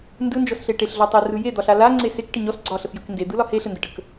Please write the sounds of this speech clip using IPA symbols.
n d ɯ n d͡ʒ ɔ s ɬ e ʈ e ɬ ɮ ɔ tˤ ɛ r ɯ j e d̪ ɒ ɬ a l a ŋ͡ǀ e s e k ʈ ə ɲ ɔ s ɡ͡ǀ ɒ ɬ ə f j ɯ k n d e d̪ ɯ l ɒ h e ɬ ə n d ə ʈ ə k

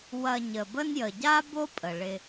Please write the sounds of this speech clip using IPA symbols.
w ɐ˨ ɲ ə˩ b ə˦ n j ə˩ ɟ a˥ b o˥ pʼ ə˩ ɭ ɪ˨

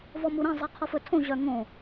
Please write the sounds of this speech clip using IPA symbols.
v ɔ m u ɾ ẽ zˤ i qʰ ɔ f ɵ tʰ õ ʑ œ ŋ õ

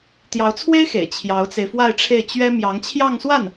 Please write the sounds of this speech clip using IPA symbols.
t̪ j ɑ˧˥ ʊ̯ t͡sʰ w e˥ ɪ̯ x ḛ˨˩ ɪ̯ t͡ɕʰ j ɑ˧˥ ʊ̯ t͡s e˧ ɪ̯ f w a˥˧ ɪ̯ ʈ͡ʂʰ e˥˩ ɪ̯ t͡ɕ ɥ ɛ˥ m j ɑ˧˥ ŋ t͡ɕʰ j ɑ˥˧ ŋ s w a˥˩ n

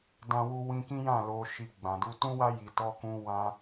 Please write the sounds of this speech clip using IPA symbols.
d ã˧ w u˧ w ĩ˧ k ĩ˦ j ã˦˨ l o˨ ʃ i˨ ɡ͡b ã˨ d u˧ t ũ˦ w a˦ j i˧ t ɔ˦ k ũ˦ w ã˦

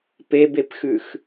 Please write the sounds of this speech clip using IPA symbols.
p e b e p x ʉ x

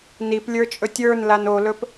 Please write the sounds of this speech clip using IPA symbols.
n i p lʲ ə˞ t͡ʃʼ ɵ tʲ ə˞ n l a n o l ɵ p

